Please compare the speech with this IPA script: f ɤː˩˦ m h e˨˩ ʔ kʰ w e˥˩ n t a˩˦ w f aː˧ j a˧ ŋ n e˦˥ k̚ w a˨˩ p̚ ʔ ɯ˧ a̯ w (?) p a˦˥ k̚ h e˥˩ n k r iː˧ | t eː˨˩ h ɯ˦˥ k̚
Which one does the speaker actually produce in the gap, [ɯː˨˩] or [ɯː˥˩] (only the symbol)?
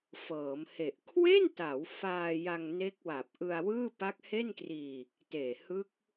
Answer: ɯː˥˩